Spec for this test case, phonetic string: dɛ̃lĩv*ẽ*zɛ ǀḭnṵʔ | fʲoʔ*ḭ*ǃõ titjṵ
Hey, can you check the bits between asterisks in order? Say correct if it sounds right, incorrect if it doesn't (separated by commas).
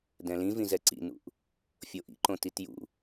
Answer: incorrect, correct